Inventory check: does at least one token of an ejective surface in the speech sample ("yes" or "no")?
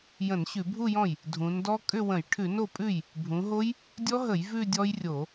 yes